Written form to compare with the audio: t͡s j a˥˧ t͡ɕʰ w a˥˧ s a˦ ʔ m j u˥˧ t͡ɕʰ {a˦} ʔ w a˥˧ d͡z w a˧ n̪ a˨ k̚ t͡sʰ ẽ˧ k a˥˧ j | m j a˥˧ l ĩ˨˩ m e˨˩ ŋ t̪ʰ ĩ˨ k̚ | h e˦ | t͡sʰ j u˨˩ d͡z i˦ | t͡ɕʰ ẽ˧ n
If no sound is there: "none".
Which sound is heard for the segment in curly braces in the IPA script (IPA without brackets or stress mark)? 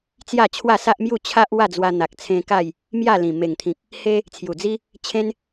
a˦